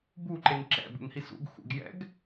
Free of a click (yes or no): no